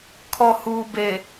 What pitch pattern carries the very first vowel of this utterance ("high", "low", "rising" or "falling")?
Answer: low